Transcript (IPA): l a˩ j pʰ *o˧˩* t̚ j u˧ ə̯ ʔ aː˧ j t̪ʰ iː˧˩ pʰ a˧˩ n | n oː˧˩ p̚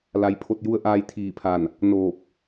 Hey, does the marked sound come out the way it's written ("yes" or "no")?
yes